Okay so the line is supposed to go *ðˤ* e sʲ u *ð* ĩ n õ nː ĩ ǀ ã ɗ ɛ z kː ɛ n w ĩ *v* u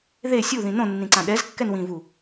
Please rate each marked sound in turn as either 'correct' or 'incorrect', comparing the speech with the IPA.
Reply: incorrect: ð, correct, correct

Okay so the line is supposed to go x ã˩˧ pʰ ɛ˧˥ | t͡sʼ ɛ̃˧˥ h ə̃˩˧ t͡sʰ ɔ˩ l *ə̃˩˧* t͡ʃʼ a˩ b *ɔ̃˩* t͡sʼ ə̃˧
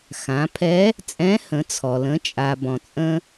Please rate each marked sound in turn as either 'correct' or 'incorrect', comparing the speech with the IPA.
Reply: correct, correct

